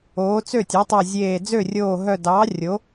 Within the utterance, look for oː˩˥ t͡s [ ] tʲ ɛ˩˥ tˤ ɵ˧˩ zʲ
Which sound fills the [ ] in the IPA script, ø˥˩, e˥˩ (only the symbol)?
ø˥˩